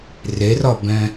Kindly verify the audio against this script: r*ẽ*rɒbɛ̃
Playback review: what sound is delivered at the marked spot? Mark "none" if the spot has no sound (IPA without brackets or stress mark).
e